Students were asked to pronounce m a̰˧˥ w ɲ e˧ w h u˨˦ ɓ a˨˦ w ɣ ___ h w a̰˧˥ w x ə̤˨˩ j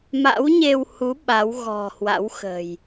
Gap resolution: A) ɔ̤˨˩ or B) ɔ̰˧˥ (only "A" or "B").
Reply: A